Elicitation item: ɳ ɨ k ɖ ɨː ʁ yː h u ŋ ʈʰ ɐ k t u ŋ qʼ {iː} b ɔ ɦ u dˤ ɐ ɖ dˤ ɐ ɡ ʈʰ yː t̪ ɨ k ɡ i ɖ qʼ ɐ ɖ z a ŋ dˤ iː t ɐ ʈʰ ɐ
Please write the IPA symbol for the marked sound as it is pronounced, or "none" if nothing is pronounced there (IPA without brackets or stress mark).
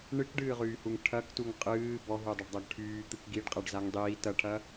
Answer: ɨː